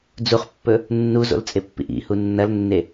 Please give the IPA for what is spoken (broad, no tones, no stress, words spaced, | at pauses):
d͡zuχpːɵ | nːuzo̰lt͡sʼepːḭʔ ḭhu nːɐlnːe